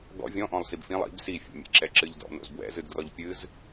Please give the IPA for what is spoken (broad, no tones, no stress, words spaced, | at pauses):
ɡɔ̰ vʲɔ̃ʔɔ̃lˠ sibfĩlˠ ḭb sifʲɛ̰mʲḛ ǁɛǁɨʎdɔ̰ no̰zbwɛ̰zɨdɡrɔʎ pʲɨz